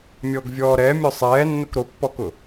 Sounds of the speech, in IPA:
mʲ ɔ ɡ vʲ ɔː ɾ ɛ mʲ ʊ sˤ ɛː nː ʊ k ɾ o pː ɔ k ʊ

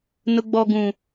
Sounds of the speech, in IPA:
n ʊ˦ ɡ͡b ɔ˦ ɡ ũ˦

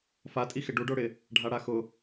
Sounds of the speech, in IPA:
f a tʼ i x ɪ ɖ u ɖ o ɽ ɪ | ɖʱ a ɽ a x ʊ

